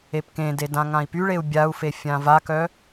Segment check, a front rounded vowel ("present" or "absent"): present